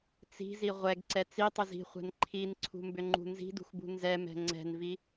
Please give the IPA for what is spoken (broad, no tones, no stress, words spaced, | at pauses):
t͡si̤zi ʁʷɛɡǀɛ t͡sitˤʏz i̤χʷɛ̤n ǃʰinǀʰṳmbʏŋ͡ǃṳ nzi̤dṳxbṳ nzɛmɛ̤ ŋ͡ǀɛ̤nvi